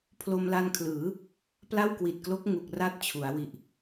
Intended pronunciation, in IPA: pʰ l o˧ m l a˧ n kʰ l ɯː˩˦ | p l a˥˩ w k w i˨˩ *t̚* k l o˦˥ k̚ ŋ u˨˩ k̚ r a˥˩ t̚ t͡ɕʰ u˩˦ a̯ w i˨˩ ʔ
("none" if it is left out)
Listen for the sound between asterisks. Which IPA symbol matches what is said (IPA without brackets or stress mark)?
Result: t̚